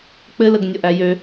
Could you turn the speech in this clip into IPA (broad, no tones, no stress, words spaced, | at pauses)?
k͡pɘləɡ nʲɔʔæjø